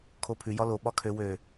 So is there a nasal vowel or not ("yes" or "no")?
no